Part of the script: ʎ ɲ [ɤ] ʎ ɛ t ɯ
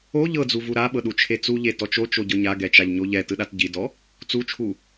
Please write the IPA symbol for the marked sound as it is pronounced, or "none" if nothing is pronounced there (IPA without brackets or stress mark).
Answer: o